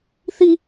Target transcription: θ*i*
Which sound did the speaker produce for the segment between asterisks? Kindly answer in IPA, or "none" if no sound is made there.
i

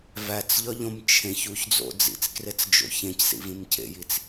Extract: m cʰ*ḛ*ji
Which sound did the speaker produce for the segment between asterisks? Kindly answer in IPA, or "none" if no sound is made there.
ḛ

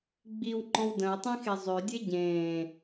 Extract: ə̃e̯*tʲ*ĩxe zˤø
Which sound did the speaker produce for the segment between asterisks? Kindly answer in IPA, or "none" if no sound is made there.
tˤ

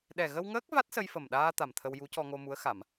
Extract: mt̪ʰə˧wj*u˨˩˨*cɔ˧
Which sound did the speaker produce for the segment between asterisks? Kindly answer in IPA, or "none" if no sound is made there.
u˧˥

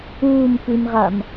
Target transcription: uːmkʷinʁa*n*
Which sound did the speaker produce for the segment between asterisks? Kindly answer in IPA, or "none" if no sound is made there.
m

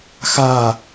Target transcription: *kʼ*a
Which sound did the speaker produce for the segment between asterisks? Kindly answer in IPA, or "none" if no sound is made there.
x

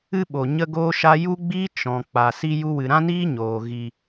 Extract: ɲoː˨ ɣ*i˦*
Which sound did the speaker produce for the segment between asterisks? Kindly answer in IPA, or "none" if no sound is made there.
i˨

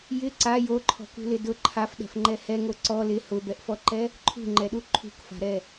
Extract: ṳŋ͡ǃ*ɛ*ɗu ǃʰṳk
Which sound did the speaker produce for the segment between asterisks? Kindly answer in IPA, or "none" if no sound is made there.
ɛ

